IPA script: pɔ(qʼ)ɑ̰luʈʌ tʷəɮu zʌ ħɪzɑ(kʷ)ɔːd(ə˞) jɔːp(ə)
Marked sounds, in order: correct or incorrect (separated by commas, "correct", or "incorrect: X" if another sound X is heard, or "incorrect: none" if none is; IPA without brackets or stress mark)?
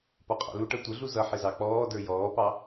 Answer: correct, incorrect: k͡p, correct, incorrect: ɑ